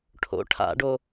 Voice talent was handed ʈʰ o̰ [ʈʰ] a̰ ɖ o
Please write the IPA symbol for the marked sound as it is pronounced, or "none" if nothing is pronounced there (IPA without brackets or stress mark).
ʈʰ